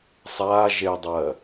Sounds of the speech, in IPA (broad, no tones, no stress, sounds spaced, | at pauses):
sˤ aː ʒ e dˤ ɜ